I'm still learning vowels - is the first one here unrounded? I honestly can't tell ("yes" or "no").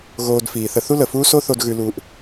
no